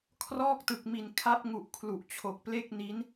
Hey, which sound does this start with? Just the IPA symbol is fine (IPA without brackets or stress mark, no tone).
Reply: kʰ